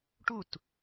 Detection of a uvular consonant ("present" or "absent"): absent